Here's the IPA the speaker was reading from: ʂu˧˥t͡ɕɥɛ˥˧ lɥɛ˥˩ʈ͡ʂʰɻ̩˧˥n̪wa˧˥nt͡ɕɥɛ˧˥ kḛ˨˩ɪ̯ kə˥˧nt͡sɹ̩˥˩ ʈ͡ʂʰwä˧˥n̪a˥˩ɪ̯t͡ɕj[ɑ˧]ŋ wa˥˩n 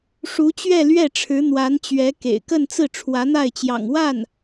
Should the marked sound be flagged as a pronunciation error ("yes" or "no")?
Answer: yes